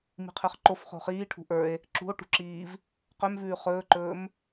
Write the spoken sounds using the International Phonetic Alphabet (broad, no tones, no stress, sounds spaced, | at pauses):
m i̤ qʰ ə˞ χ ǃ o f χ o̤ χ iː ʈʰ ṳ ʔ ə˞ e̯ | ǁ ṳ o̯ ʈ ṳ ǁ iː v | q œ m v ʉː χ ɵː ǃ ɵː m